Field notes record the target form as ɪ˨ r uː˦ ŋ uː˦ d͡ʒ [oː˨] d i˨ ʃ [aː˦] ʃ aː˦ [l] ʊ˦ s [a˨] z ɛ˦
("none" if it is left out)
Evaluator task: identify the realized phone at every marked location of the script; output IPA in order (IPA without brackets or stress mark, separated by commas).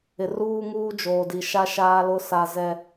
oː˨, a˦, l, a˦